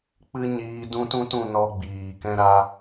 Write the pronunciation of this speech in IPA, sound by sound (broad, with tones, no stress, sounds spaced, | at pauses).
k͡p ɨ˦ ɲ iː˧ d ũ˦ t ũ˦ t ũ˧ n ɔ˧ ɡ͡b iː˨ k ɛ̃˦ ɾ a˧